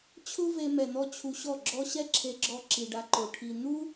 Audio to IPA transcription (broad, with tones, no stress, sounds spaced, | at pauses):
t͡ɕʰ ʊ˦ v e˧ m ɛ˨ n̪ ɔ˧ t͡ɕʰ u˧ ɕ ɔ˦˨ ɡ͡ǁ ɔ˦ ɕ ɛ˦ ǁʰ e˧ ɡ͡ǁ ɔ˧ ǁ i˨ ɖ a˧ ǃ o˨ ʈʰ i˨ n̪ u˦